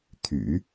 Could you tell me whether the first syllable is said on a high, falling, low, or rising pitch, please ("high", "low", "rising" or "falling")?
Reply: low